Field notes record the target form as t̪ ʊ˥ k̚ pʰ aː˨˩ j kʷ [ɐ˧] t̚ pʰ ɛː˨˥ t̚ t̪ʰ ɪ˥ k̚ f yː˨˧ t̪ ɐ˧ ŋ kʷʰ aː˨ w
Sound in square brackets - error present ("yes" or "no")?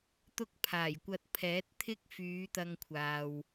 no